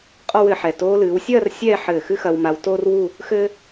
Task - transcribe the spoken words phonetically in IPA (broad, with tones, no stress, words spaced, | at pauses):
qʼɔ˥wɘː˧ħɛ˧˩ toː˧lɨː˩˧wsʲɐː˥˧r sʲɛ˥˧ ħɘː˧˩xɨ˥xɐ˧w ma˧w toː˥rwu˥˧ | xɘ˥